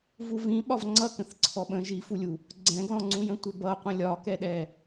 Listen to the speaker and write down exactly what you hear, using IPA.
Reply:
v u v ĩ ɓ ɒ v ŋ͡ǀ ʌ k ə̃ θ ǀʰ ɔ ɓ ə̃ ʒ i f u lʲ u | ɡ͡ǀ ɛ̃ ɡ l ɔ̃ ŋ͡ǀ ũ j ə̃ tʷ ɪ b ʌ qʷ ə̃ lʲ ɒ k ɛ ɗ ɛ

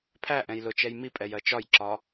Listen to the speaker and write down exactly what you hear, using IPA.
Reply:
pʰ æ ʔ ɛ̃ j l ʊ t͡ʃ ɛ j m i pʼ ɛ j ɜ t͡ʃ ɒ j ǁ ɒ

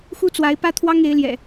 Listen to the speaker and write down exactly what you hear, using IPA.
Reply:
x u˦ t͡s w a˨˦ ɪ̯ p ä˦ t̪ʰ w ɑ˦ ŋ e˨˦ ɪ̯ l j ɛ̰˨˩

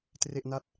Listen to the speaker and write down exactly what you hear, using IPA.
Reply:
t r e˥˩ ʔ n a˥˩ t̚

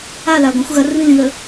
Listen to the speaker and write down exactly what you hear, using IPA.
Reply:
a l a ɡʷ ɐ̃ xʷ ɣ ɐ r β ĩ l ĩ ð ɵ

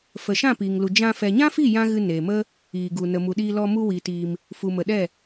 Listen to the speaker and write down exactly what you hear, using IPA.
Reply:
f ə˨ ʃ ã˦˨ p iː˨ ŋ l u˨ d͡ʒ ã˧ f ɛ˨ ɲ ã˦ f i˦˨ j ã˦ ɣ ɨ˧ n e˨ m ə˦ | iː˨ ɡ u˨ n ə˨ m u˨ ɗ iː˧ l ɔ˧ m u˧ w iː˨ t iː˧ m | f u˨ m ə˨ ɗ ɛ˦˨

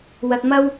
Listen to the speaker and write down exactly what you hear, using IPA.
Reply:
w ɐ˧ t̚ m ɐ˥ w

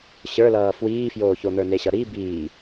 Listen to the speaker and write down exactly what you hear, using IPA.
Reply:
ɕ ə˞ l ʌː f w iː f j oː ç o n̪ ə˞ n e ɕ ʌ ɾ i b iː

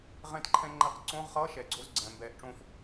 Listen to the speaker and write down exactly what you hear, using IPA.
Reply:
ʁ ɛ̃˧ t ǃʰ ɛ̃˧ ŋ͡ǃ ɛ˨˩˦ q ǀ õː˧˥˧ ʁ χ ʌː˧˥˧ ʃ ɛ˩ ɡ͡ǀ o˧˥˧ z ɡ͡ǀ ɛ̃ː˩ m b ɛː˨˩˦ ʔ ʈ͡ʂ õː˧ f

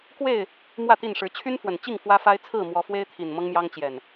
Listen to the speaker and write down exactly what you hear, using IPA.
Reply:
k w e˥˨ ɪ̯ | m w ä˥˨ t̪ i˥˨ n ʂ ɻ̩˨˦ t͡ɕʰ y˦ n f w ə˨˩ n t͡ɕ i˥˨ ŋ f w ä˦ f a˦ ɪ̯ t͡sʰ ɹ̩˥˨ m w ɔ˨˦ f w e˦ ɪ̯ t̪ʰ i˨˩ n m ɤ˦ ŋ m j ɑ˦ ŋ t͡ɕ j ɛ˨˩ n

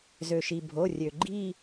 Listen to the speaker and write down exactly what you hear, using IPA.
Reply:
z ø˩ ʃ i˩ bʱ o˩˧˩ rʲ ø˩ ɡ͡ǃ i˥˧

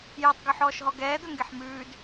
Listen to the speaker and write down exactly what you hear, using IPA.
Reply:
j æ tˤ ɡ ɵ ħ ɔː ʃ ɦ ɔ ɡ ɛː d̪ ɵ ŋ ɡ e ħ m ʉː d

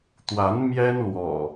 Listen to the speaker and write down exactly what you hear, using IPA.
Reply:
t̪ w a˨˦ n m j ɛ˦ n l w ɔ̰˨˩

